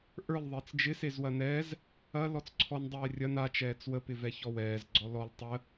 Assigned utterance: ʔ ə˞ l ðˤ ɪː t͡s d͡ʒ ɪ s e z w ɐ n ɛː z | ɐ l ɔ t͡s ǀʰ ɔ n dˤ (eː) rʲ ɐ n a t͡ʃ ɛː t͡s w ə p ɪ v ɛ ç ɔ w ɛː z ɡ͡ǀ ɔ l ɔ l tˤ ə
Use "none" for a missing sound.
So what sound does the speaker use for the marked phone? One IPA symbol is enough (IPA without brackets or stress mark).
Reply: ɛː